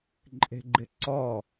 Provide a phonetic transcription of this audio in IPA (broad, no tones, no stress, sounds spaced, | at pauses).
ǃʼ e̤ ɡ͡ǃ ɪ ǀ ɔ